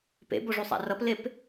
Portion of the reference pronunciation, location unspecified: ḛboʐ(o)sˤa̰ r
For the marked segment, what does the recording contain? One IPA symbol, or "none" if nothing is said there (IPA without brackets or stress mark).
u